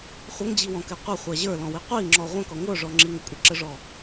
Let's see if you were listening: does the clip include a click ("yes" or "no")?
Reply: yes